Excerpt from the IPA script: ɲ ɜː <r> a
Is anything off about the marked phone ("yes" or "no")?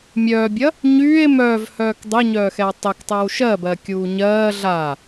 yes